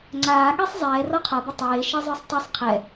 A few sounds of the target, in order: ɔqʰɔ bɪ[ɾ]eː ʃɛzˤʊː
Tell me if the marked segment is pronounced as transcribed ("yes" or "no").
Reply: no